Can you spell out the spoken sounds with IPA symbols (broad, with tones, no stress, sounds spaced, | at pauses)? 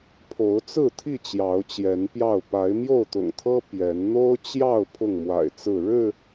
pʰ o˨˦ ʊ̯ t͡s ɹ̩˥˨ t̪ʰ i˥˨ t͡ɕ j ɑ˨˦ ʊ̯ t͡ɕ j ɛ˨˦ n p j ɑ˥˨ ʊ̯ p a˨˦ ɪ̯ m j o˥˨ ʊ̯ t̪ ʊ̰˨˩ ŋ t̪ʰ ɤ˦ p j ɛ˨˦ n n̪ o˦ ʊ̯ t͡ɕ j ɑ˥˨ ʊ̯ pʰ ʊ˥˨ ŋ m w a̰˨˩ ɪ̯ t͡s ɹ̩˥˨ ɻ ɻ̩˥˨